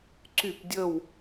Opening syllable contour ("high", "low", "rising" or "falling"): falling